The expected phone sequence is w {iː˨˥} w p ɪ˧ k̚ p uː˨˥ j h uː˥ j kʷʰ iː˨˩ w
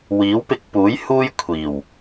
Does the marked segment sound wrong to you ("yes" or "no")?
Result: no